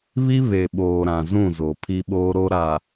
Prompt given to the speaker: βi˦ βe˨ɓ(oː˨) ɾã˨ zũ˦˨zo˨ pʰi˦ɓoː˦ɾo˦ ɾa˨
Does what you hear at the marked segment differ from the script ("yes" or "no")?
no